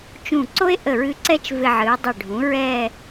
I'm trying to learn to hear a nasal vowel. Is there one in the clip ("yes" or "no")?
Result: yes